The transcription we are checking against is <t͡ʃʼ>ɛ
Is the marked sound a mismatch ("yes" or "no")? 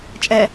no